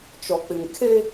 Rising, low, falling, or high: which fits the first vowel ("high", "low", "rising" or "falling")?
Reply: low